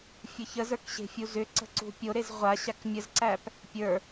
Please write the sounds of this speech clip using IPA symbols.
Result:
fʲ ə ç ə z ə˞ k ɕ e̤ fʲ u z ʏ ǀ ə̤ ǀ ṳ pʲ o ɾ e z ʁʷ a ɕ a k mʲ ə z ǀ æ p | pʲ ə˞

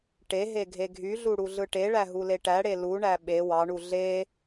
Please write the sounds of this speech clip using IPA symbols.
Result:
ʈ e ɦ e ɡʱ e ɡʱ y ɮ u ɽ u ɮ ɯ ʈ e ɭ æ ɦ u l e ʈ æ ɽ e l u ɳ æ ɓ e w ɑ ɳ u ɮ e

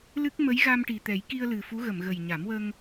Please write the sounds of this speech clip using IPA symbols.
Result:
l ɨ˦˥ k̚ m ə˧˥ j ɣ a˧ m ʈ i˨˩ t̪ ɛ˨˩˦ j k i˧ ə̯ l ɨ˨˩ f u˧˥ ɣ ə˨˩˨ m ɣ ə˨˩ j ɲ a˨˩˦ m w ə˧ ŋ

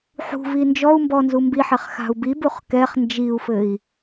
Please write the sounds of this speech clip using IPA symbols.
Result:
ħ ṳ v i n d͡ʒ ɔ u̯ m b ɔ n z u m b i ħ ɛ χ x a̤ u̯ b i b u χ k ɛ χ n d͡ʒ i u̯ f ɘ i̯

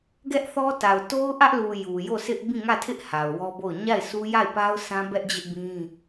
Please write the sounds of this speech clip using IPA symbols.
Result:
ɡ ɛ˦ ʔ θ ɔ˦ t a˨ ʊ̯ t o˦ ʊ̯ ʔ ä˦ ʔ l u˨ j u˨ j o˦˨ sʰ ɪ˦ ʔ b ĩ˦˨ ŋ ä˦˨ tʰ ɪ˦ ʔ h a˨ ʊ̯ w ɔ˦ b o˦˨ ʊ̯ ɲ a˦˨ ɪ̯ sʰ u˦ j a˦˨ ɪ̯ p a˦ ʊ̯ sʰ ã˦ b ɛ˦ ʔ d͡ʑ ɪ˦ ʔ b ĩ˦

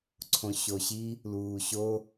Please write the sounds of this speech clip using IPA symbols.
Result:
ǀʰ õ ɕ o ɕ i | l uː ɕ o

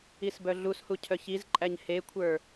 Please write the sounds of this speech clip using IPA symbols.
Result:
i s b œ ɮ u s h u cʰ œ ç i z ǃʼ æ ɲ h e kʷʰ ə˞

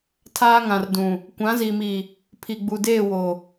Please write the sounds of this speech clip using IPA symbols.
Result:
tʰ aː˦ ŋ ã˨ r d ũ˨ | kʷ ã˨˦ z i˨ m i˨ | pʰ i˨ ɡ͡b u˨ d eː˦˨ w o˨

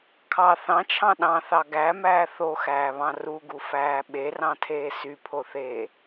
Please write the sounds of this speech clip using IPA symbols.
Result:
kʰ ɑ θ ɑ̃ t͡ʃʰ ɑ̃ ɗ ɑ̃ θ ɑ ɡ æ m æː θ o x æː β ɑ̃ r u ɡ u f æː ɓ e r ɑ̃ tʰ eː s y pʰ o θ eː

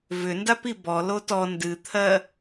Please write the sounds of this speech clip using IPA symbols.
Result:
v ʏ n d a p i b ɔ l o t ɔ n d ɨ t̪ʰ ɜ

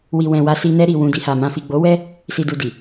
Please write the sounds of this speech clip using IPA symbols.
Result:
w i˨ w ɛ̃˨ w a˧ s i˧ n ɛ˧ ɾ i˨ w ũ˨ d i˨ h a˨ m ã˨ f i˨ ɡ͡b o˨˦ w ɛ˦ | s i˨ d u˨ d i˨

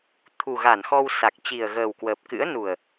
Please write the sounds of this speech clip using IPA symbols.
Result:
t̪ʰ u˨˩ ɣ a˧˩ n x ɔ˧ w s a˨˩ k̚ t͡ɕ i˨˩ ə̯ ɣ əː˨˩ w k w əː˨˩ p̚ k ɨ̰˧˥ ə̯ n u˨˩ ə̯

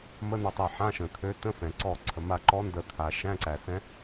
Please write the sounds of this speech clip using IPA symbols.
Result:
m ə˧˥˧ n ɔ˧˩ tˤ a˧˩ ħ ã˧˥˧ ʃ ə̃˩ t̪ʰ ø˧˥ t ə̃˧˥˧ f ɛ̃˩ ǀ ɔ˧˩ ǀʰ ə˩ m a˧˩ ǃ ɔ˧˥ n d ə˧˩ t̪ʰ a˩ ʃ æ̃˧˥˧ ǀ æ˩ s ɛ̃˧˥

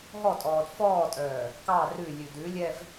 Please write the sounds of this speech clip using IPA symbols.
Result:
ɦ ɔ tʼ ɔː d f ɔː tʼ œː | k ɑ r ʉ lʲ ʉ d ʉ lʲ ɛ v

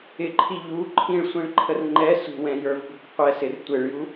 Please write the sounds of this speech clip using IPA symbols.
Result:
ɪ ǃʰ i ʎ u ǃʰ ĩ ɭ sʷ ĩ ɭ ǃʰ ə r ŋ͡ǃ ɛ s ṳ w ɛ̃ j ə˞ v b ṳ k qʷ ɛ s ɪ r tʷ ɪ ɭ j u

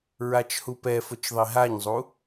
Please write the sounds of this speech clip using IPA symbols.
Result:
ɹ a t͡ʃ h u p ɛ f ʊ t͡ʃ ðˤ i ɦ a ɲ zˤ u

